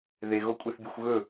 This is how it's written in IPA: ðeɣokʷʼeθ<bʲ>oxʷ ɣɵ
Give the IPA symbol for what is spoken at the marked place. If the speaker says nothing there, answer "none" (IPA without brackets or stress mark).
bʲ